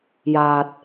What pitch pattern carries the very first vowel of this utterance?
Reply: low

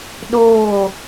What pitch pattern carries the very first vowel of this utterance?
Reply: falling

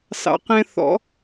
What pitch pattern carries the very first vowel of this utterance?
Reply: low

